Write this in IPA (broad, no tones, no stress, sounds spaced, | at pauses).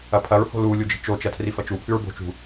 ɐ pʰ ɐ ɹ h o̤ l u lʲ u d͡ʒ i̤ t͡ʃ o t͡ʃ ɐ tʰ r i f ɐ t͡ʃ u pʰ ʉ ɹ b o̤ t͡ʃ ṳ